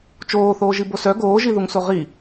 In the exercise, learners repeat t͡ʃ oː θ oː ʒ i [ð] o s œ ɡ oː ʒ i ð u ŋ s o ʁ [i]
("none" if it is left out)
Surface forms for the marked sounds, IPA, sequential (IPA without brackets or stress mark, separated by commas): b, i